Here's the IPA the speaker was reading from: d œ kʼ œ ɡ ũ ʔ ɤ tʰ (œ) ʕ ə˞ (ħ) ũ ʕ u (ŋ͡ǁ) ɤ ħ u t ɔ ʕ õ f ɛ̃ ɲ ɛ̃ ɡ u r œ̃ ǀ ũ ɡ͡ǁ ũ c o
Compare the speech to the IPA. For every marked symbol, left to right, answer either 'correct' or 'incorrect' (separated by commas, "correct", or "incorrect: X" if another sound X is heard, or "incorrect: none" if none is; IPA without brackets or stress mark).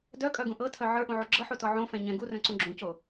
correct, incorrect: ʔ, incorrect: ɡ͡ǁ